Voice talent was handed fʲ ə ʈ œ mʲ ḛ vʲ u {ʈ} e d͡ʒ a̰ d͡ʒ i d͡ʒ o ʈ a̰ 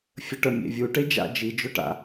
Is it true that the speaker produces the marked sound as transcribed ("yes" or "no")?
yes